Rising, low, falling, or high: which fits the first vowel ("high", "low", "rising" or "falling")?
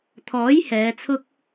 rising